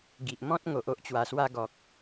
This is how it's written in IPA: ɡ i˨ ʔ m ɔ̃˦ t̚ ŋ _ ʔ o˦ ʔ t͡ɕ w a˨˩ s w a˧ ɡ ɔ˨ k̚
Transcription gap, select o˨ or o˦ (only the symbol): o˨